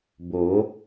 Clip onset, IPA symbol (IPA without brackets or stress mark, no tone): b